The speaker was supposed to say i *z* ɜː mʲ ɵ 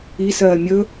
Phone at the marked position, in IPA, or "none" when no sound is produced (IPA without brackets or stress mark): s